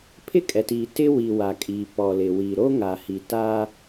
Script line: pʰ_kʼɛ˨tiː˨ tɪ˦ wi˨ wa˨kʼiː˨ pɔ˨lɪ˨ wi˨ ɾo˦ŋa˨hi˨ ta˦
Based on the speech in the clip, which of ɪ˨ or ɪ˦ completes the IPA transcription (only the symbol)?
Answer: ɪ˦